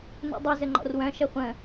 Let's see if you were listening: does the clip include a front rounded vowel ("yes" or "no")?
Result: yes